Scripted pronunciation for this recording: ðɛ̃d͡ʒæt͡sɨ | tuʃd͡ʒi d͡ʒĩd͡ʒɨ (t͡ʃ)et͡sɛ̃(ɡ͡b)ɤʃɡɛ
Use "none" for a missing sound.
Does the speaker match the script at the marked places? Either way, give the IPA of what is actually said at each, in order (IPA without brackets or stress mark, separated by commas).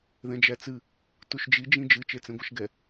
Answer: t͡ʃ, ɡʷ